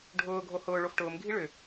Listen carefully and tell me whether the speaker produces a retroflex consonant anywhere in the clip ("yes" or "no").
yes